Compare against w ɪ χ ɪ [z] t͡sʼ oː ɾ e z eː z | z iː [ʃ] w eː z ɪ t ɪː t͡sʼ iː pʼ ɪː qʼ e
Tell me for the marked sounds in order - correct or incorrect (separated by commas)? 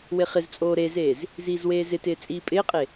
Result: correct, incorrect